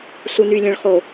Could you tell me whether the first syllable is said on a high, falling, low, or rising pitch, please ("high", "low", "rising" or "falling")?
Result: low